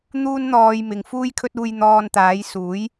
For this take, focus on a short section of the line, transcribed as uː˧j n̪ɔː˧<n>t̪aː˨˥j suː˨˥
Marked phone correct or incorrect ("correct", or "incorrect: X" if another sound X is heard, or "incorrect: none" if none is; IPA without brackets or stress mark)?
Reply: correct